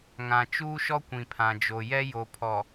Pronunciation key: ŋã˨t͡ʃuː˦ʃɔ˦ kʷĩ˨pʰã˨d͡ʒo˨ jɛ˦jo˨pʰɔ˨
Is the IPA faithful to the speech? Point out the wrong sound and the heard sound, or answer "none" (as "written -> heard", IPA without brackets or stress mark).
none